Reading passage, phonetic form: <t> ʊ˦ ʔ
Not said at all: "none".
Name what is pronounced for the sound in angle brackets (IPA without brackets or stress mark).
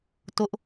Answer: t